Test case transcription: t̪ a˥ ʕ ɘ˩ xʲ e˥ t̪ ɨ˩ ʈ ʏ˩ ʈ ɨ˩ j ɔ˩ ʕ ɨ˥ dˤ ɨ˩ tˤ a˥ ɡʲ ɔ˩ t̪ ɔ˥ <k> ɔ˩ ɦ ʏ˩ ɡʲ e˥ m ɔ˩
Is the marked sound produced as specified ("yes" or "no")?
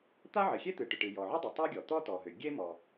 no